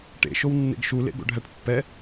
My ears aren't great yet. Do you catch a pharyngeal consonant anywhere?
no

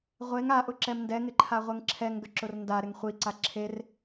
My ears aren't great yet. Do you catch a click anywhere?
yes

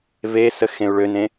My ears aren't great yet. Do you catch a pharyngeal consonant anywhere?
no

